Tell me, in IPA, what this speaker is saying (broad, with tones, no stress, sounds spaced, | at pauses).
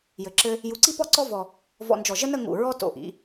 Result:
j ɘ˧ ǁ ɘ˥ | j u˧ ǀ i˥ p ɔ˥ ǀ ɔ˥ v ɔ˧ | v ɔ̰˧ n d͡ʒ ɔ˧˩ ʒ ə˥ n ə˥˧ ŋ ṵ˧˩ ɹ ɔ˥ t o̰˧˩ ʔ ḭ˩˧